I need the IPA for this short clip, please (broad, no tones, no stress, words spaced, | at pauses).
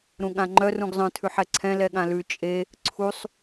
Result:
ɾũɠãŋ͡ǃœ rũɡzˤœ̃ tʰʉħɛǀʰɛ̃ lɛɠãlʉ t͡ʃʼe | ǀʰusˤ